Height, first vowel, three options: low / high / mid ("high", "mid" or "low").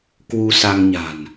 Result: high